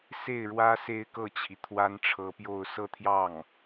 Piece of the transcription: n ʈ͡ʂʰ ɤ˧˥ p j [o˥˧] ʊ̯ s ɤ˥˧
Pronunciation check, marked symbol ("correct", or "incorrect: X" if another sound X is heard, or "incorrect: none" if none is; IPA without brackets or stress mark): correct